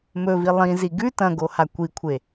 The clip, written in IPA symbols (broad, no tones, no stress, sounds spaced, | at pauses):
m ɵ v i lˠ ĩ z i ɡ ʉ t ɐ̃ ɡ o h a kʷ i kʷʰ e